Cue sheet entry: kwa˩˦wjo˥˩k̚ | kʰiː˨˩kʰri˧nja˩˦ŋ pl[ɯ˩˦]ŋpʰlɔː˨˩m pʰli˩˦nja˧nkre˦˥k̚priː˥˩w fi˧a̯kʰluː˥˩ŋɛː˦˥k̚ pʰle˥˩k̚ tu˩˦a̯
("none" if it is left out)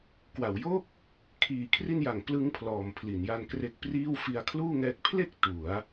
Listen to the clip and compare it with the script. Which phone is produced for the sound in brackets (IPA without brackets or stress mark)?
ɯ˦˥